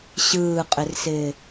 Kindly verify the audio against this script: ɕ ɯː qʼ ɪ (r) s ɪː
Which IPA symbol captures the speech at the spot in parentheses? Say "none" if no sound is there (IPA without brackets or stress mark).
r